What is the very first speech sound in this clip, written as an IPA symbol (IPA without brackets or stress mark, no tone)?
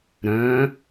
ɾ